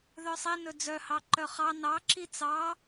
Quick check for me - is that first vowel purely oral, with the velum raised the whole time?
yes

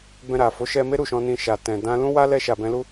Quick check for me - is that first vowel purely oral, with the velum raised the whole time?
no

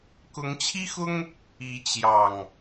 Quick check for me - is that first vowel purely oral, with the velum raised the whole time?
yes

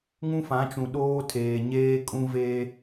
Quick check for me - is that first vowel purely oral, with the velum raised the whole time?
no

